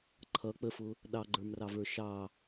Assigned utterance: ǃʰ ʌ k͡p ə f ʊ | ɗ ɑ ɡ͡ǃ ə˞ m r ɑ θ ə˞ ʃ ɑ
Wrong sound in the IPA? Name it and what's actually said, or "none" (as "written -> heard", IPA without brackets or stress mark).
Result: θ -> v